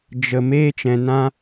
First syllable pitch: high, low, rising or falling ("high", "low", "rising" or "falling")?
low